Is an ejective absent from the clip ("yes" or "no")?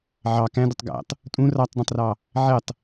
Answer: no